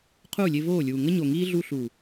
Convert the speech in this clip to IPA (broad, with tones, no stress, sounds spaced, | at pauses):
qʰ uː˦˨ lʲ e˧ v oː˦˨ lʲ uː˨ ŋ ə˦ ɲ o˨ ŋ iː˦ ɮ u˧ ɬ u˨